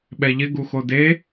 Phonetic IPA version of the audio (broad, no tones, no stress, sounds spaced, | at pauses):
ɓ ɛ ʎ ɪ ɡ u x o d e